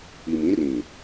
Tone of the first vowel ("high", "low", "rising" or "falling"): low